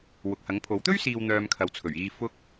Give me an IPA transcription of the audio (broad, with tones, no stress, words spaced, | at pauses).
wʊ˨k̚hɐ˨˥ŋpʰo˨˥w t̪ɵ˥ɥsiː˨w n̪œː˧mkʰɐ˨wt͡sʰɵ˨˩ɥiː˧ fʊ˧k̚